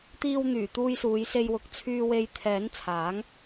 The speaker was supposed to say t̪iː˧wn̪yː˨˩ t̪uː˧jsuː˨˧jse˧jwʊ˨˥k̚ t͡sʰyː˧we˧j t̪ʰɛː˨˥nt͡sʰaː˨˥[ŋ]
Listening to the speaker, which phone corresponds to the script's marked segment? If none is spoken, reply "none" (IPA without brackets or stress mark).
ŋ